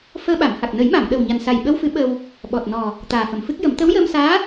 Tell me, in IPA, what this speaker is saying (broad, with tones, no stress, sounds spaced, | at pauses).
f əː˧ ɓ a˨˩˨ m h a˨˩ k̚ n ə˨˩˦ j m a˨˩˨ m ɗ ə˨˩ w ɲ a˨˩ n s a˨˩ j ɓ ə˧ w f ɨ˨˩˦ ɓ ə˧ w | ɓ ɔ˨˩ t̚ n ɔ˨˩ | t̪ aː˨˩ f ə˨˩˨ m f ɨ˦˥ k̚ j ə˨˩˦ m t̪ ə˧˥ w j əː˧ m s aː˧˥